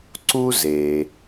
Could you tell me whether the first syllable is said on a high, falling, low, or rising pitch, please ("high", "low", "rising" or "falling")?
high